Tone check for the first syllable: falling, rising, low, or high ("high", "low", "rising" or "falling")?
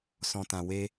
low